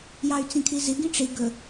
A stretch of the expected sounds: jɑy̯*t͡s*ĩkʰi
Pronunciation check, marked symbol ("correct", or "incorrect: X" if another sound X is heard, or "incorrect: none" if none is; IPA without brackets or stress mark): correct